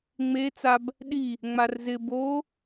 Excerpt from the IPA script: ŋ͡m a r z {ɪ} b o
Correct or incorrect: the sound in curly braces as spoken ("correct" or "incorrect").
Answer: correct